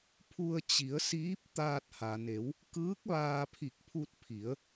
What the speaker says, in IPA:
pʰ u˧ ə̯ t͡ɕ i˩˧ ə̯ s iː˧˥ p̚ t̪ aː˧ t̚ h a˩ n e˩˧ w | k ɯː˧˥ k̚ ʋ aː˧ pʰ i˧˩ k̚ pʰ u˧ t̚ pʰ i˩˧ ə̯

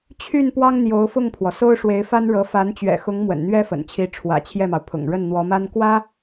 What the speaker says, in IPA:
t͡ɕʰ y˥˩ n p w ɑ˥ ŋ n̪ j o˧˥ ʊ̯ f ʊ˥˩ ŋ pʰ w ɔ˩ s o˥ ʊ̯ ʂ w e˧˥ ɪ̯ f a˥ n ɻ ɤ˧˥ f a˧˥ n t͡ɕ ɥ ɛ̰˨˩ x ʊ˧˥ ŋ m w ə̰˨˩ n n̪ ɥ ɛ˥ f ə̰˨˩ n t͡ɕʰ i˧˥ ʈ͡ʂʰ w ä̰˨˩ t͡ɕʰ j ɛ˥˩ m ɑ˩ ʊ̯ pʰ ʊ̰˨˩ ŋ ɻ ə˥˩ n n̪ w ɔ˧˥ m a˥ n k w ä˥

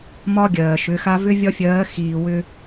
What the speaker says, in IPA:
m ɒ˦ ɡʲ ɜː˨ ʃ ʏ˨˦ x a˦ v ʏ˦ vʲ ɒ˦ fʲ ɜː˨˦ x iː˨ w ʏ˦

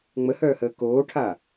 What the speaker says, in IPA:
ŋ͡m ə h œː h əː k oː ʈʰ a

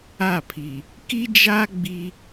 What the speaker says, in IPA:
a˦˨ pʰ i˨ | k i˦ d͡ʒ a˦ ɡ͡b i˦

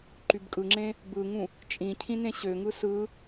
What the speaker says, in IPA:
ǃ y b kʼ ɯ ŋ͡ǁ ẽ | b ɯ ŋ ũ | t͡ʃʼ ĩ cʰ ĩ n ẽ ɕ ø ŋ ɯ s ɯ

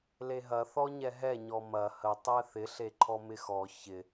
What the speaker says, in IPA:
l e ɦ ɐ θ ɔ ɲ ɛ ɦ ɛ ɲ ɔ m ɐ h ə tˤ ɛ θ ɪ ɬ e ǃʰ ɔ m ɪ x ɔ ç ɪ

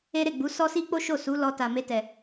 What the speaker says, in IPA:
e˦ ɾ e˦˨ ɡ͡b u˨˦ s ɔ˦ s i˦ k͡p o˦ ʃ o˦˨ s u˨˦ l ɔ˧ t a˨ m e˧ t ɛ˨

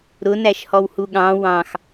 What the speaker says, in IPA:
ɾ ʊ n æ ʃ h ɔ w h u ɠ ɑ̃ w ɑ̃ x

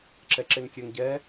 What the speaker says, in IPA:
ǁ ɛ ǁ e n kʲ ø ŋ ɟ ɛ

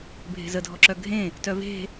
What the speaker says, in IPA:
bʱ e̤ z ə dʱ ɔ ǁ œ ɡʱ ẽ | t œ v e̤

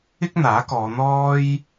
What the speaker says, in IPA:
ɪ˥ k̚ n̪ aː˨˥ k ɔː˨˧ n̪ ɔː˥ j

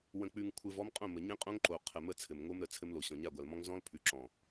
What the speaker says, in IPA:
w ə̃˨ k͡p ʉ˨ ŋ kʷʰ ɘ˨ v ɔ˦ m qʼ õ˦˨ m ə˨ ɲ ẽ˦ qʼ õ˦ ŋ ǃ o˨ qʰ ə˨ m ə˦ t͡sʰ ɘ˨ m ŋ o˦ m ɾ ə˨ t͡sʰ ɘ˦ m l o˨ ɕ ɔ̃˨ ɲ a˦˨ ɡʷ a˨ l m ɔ̃˦ ŋ z ɔ̃˦ l pʰ ʉ˨ ǁ ɔ̃˨

